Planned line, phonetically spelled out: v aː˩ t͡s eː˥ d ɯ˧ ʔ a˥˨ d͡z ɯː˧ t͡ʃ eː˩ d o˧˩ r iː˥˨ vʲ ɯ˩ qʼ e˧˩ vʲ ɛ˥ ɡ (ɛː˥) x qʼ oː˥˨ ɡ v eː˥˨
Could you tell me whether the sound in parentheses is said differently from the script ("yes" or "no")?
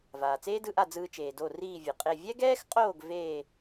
no